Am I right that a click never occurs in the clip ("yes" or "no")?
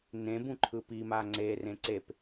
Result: no